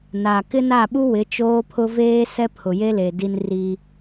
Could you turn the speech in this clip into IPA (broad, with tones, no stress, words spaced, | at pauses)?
naː˨kɪ˦na˦˨ɓu˦ wɪ˨˦t͡ʃoː˦pʰʊ˦ veː˦ sɛ˦pʰʊ˨je˦le˨ di˦nriː˦